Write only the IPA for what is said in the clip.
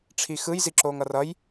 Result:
ʈ͡ʂʰ i x ɯ j z i ǁ oː ŋ ʌ r ʌ j

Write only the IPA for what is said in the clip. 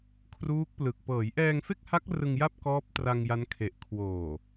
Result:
kʰ r uː˦˥ k̚ p l ɯ˨˩ k̚ p ɤː˩˦ j ʔ ɛː˧ ŋ f e˥˩ k̚ h a˦˥ k̚ r ɯ˧ ŋ j a˥˩ p̚ k ɔː˦˥ p̚ t r a˧ ŋ j a˦˥ n kʰ e˨˩ ʔ kʰ w oː˨˩

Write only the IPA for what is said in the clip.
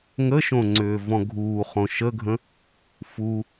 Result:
ŋ ə ʃ õ ŋ͡ǀ ʏː v ɔ̃ ɡʱ uː χ õ ʃ ə ɡʱ ə̃ | f u

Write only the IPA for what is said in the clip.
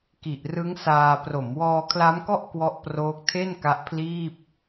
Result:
k i˨˩ ʔ r ɯ˦˥ ŋ s aː˧ p r o˩˦ m w ɔː˧ kʰ l a˦˥ m k ɔ˥˩ ʔ k w ɔ˦˥ ʔ p r oː˦˥ k̚ tʰ e˥˩ n k a˦˥ ʔ pʰ l iː˥˩ p̚

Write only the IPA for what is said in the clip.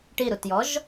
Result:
ʈ i ɾ u t j ɔ ʒ

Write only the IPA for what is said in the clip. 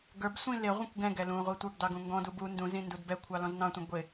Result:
ɡ ə˞ b sʷ ĩ l ɪ ʁʷ ĩ kʷ ɡ ɛ̃ ɡ ɛ l ũ ʁʷ i tʷ ə˞ ɡ d ɑ ɡ ũ ŋ ɡ ɔ̃ d u b u n d ũ z ĩ n d u d b ɛ kʷʰ ɑ l ɔ̃ z n ɑ̃ tʷ ĩ ɡʷ ɪ

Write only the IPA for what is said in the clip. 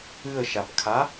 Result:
ɨ ə̯ ʃ a b kʰ a

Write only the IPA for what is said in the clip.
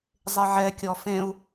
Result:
zˤ e ʕ ɛ kʲ ɔ f ẽ u̯

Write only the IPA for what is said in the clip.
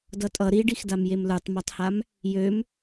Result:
d ʌ tʼ ʌ ɾ i ɖ i x d a m j e m l ə˞ tˤ m a tˤ h a m | j ø m

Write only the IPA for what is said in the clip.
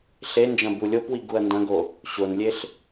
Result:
ɬ e n d͡ʒ ɐ̃ b u lʲ o p w i ɡ u ɐ̯ n d ɐ̃ ɡ o | ɕ o n lʲ e ɬ

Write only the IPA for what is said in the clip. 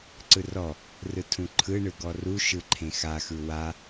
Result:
ǀ ɯ r ɔ | r ɯ tʰ ũ ǃʰ ɯ ɳ ɯ ɡ ɔ r u ʃ ɯ ǃʰ ẽ x a x ɯ w a

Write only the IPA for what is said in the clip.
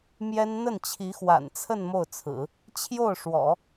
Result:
m j ɛ˥ n n̪ ə˥˩ n t͡ɕʰ i˧˥ x w a̰˨˩ n t͡sʰ ə˥˧ n m o˥˩ ʊ̯ t͡sʰ ɹ̩˨˩˦ | t͡ɕʰ j o˥˩ ʊ̯ ʂ w ɔ̰˨˩˦

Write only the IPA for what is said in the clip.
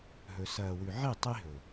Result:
ɦ ɵ˧ s ɐː˨ w ʉ˨ ʕ i˦˨ tˤ i˦ ɦ ɵ˨

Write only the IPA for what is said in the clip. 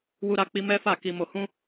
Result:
w u˧ ɾ a˧ k͡p i˧ m ɛ˦ f a˦˨ k i˧ m o˧ h ũ˦

